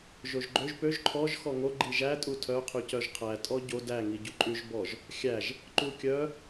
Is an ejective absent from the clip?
no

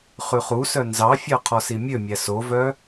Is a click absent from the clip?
yes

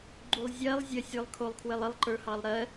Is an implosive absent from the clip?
yes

